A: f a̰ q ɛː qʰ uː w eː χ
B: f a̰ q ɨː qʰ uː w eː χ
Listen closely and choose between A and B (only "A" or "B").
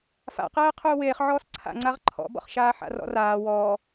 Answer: A